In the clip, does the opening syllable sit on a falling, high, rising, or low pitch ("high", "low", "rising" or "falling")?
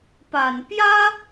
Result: low